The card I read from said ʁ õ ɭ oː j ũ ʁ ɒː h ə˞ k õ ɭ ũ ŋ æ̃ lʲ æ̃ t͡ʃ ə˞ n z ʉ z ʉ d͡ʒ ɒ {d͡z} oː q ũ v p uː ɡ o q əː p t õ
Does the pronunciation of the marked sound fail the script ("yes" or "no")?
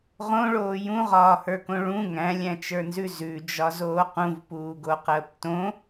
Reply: yes